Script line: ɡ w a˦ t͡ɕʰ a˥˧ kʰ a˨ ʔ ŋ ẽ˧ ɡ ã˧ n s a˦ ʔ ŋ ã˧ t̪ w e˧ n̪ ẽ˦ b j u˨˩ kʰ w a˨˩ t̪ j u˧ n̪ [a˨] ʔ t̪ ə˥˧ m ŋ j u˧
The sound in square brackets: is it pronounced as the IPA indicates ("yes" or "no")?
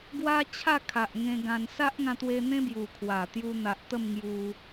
yes